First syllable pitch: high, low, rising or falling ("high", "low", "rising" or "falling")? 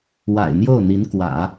low